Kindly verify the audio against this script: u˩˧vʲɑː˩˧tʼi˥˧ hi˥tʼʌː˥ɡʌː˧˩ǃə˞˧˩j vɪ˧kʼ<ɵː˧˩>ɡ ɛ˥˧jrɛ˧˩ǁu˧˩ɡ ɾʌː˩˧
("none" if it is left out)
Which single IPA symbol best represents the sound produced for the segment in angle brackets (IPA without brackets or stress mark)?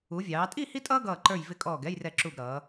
ɔː˧˩